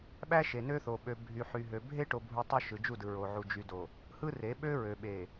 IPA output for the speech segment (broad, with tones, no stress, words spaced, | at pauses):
ɓæ˦ ʃe˨nø˦θo˨ ɓø˨bʱy˨ħy˨ɦø˨ bʱe˦ʈo˨bʱu˨ tˤo˦ʃɯ˨d͡ʒu˦˨dɯ˨ ɹo˨ ʕu˨d͡ʒy˨do˨ | hɯ˦re˨˦ ɓø˦ɹø˨ ɓe˨